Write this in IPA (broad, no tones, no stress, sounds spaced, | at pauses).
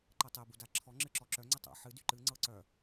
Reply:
ǃ ɤ tˤ e b u d a ǁʰ ɔ ŋ͡ǁ ɨ ǁ ɔ ǁ œ ŋ͡ǀ ɨ tˤ a̰ ħ ɨ d y ǃ ɨ ŋ͡ǀ ɤ ǀ œ